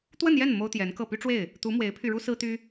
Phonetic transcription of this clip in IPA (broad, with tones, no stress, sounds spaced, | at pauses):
t̪ w ə˥˧ n j ɛ˥˩ n m o˥ ʊ̯ t̪ j ɛ˧˥ n k ɤ˥˩ p y˥ ʈ͡ʂ w e˥˩ ɪ̯ | t̪ u˧˥ m w e˧˥ ɪ̯ pʰ y˧ ɻ u˥ s ɹ̩˥ t̪ y˥